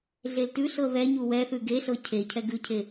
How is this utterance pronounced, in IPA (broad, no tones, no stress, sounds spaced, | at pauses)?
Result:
ɮ e l t ʉ ɬ ɤ ð ɛ ɲ u w ɛ θ ʉ ɡ e ɬ ɤ cʰ e cʰ ɛ ɡ ʉ cʰ e